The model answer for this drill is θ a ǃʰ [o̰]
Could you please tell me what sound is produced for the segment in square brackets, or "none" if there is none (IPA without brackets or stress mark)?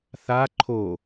o